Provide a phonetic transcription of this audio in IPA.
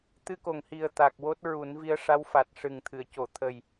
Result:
t̪ ɨ˧ k o˨˩ ŋ h i˨˩ ə̯ t̪ a˨˩ k̚ w o˦˥ t̚ ɹ u˨˩˦ n v i˧˥ ə̯ ʂ a˧˥ w f a˨˩ t̚ ʂ ɨ˨˩ ŋ t̪ʰ ɨ˨˩˨ ə̯ c o˨˩˨ t̪ʰ ə˨˩ j

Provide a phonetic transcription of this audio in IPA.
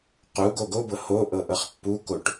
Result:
q u ɡ o ɡ o b ɤ h o ʔ ɤ ʔ ɤ χ pː u k o ʈ

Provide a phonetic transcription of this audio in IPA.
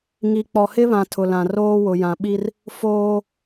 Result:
ŋ i˨ k͡p ɔ˨ h ɪ˦ β ã˨ tʰ ʊ˨ l ã˨ r oː˦ w ʊ˨ j ã˨ ɓ i˦ r | f oː˦

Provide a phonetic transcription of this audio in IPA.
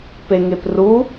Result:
p e ŋ e p r u

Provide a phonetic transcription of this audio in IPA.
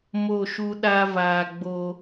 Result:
m o˦˨ ʃ u˦ ɗ a˦ v aː˨ ɡ͡b o˦

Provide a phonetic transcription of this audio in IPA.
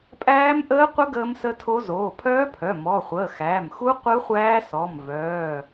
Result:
pʼ æː˦˥ m ʔ əː˦˥ qʷ ə˦˥ ɡ əː˦˥ m s ə˦˥ tʰ o˦˥ z oː˩˧˩ pʰ œː˦˥ pʰ œ˩˧˩ m ɔ˩˧˩ χʷ əː˩˧˩ x æː˩˧˩ m x u˦˥ qʷ ɯ˦˥ χʷ æː˦˥ s ɔ˩˧˩ m v œː˩˧˩

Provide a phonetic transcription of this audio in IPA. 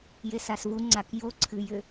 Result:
j e s a s v u ŋ͡ǀ a k j o ǀʰ ɨ j ʏ

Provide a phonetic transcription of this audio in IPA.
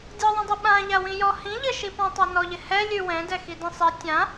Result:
dʲ ɔ ðˤ ɛ̃ dˤ ɛ ɓ ã ʎ a w ĩ j ɔ h ĩ ʎ ɪ ʃ i p ɔ̃ tˤ a n ɔ ʎ ɪ h ɛ lʲ ʉ w ɛ̃ d ɛ x i d ĩ sˤ i tʲ ã

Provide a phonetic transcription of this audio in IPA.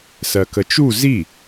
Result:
s ɜ k ə t͡ʃ u z i

